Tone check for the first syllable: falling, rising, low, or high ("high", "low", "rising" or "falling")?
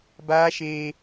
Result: high